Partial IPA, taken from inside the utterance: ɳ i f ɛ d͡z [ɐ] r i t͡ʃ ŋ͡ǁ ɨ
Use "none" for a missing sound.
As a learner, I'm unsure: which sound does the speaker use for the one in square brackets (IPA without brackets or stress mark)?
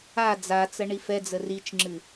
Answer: ə